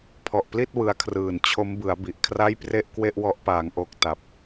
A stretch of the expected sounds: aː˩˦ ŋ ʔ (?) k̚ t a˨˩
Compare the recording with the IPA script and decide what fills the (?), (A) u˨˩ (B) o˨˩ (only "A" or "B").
B